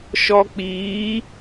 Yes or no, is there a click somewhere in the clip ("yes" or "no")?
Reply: no